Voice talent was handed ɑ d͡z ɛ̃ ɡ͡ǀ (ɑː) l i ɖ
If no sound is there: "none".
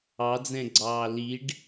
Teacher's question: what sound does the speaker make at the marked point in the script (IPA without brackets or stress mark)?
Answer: ɑː